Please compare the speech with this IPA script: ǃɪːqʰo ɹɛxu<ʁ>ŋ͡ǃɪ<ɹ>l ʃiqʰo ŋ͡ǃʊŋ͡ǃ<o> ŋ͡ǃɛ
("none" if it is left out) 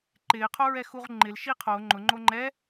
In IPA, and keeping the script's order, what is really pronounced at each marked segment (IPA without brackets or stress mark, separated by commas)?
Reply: ʁ, none, o